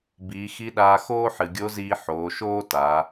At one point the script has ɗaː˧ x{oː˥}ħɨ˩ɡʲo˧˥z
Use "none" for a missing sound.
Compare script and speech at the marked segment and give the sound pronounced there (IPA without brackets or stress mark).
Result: oː˥